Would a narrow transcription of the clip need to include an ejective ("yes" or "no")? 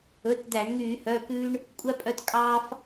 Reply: yes